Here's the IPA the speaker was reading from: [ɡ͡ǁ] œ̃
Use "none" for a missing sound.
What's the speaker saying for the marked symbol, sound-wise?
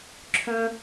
ǁʰ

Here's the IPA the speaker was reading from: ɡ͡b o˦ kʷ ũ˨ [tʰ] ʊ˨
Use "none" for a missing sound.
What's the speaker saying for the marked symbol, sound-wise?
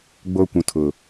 tʰ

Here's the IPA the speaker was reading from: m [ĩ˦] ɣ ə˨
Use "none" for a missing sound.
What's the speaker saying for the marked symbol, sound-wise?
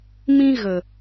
ĩ˦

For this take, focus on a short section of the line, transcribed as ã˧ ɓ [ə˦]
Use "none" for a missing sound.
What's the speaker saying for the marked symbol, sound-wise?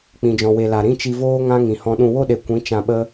ə˦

